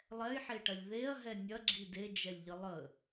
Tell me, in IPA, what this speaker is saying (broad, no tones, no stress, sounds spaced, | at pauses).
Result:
lˠ ɛ j ħ e ʈ ɐ lʲ ð e ɐ̯ ɦ ɛ nʲ ɐ ɡ͡ǁ i d e d͡ʒ ɛ lʲ ʎ ə lˠ ə